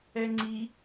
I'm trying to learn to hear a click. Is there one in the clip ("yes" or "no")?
yes